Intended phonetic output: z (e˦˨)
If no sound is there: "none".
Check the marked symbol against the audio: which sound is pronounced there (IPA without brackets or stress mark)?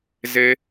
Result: e˦